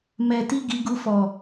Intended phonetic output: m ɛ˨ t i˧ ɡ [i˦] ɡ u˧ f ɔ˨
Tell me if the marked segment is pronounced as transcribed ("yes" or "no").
no